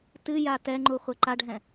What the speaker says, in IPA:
tɨja tɛŋ͡ǃu χʷɛǃaɖʱɛ̃

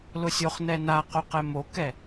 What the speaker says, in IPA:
lʊsʲoχnɛ na qoqɛmokɛ

